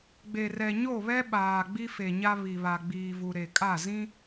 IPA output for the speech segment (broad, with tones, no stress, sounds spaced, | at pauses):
ɡ͡b e˨ r ɛ˨ ɲ o˦˨ β ɛ˦ ɓ aː˨ ɡ͡b i˦ f e˨ ɲ a˦ β i˨ β a˨ ɡ͡b iː˨ v u˨ ɾ e˨ kʼ a˦˨ z ĩ˦